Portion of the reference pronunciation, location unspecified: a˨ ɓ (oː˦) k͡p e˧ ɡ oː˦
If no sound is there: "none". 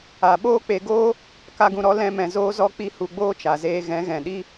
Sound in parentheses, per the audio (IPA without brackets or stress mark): oː˦